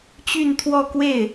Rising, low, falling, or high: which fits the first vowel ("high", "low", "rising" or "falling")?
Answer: falling